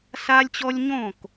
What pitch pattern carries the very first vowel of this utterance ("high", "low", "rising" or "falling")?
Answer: high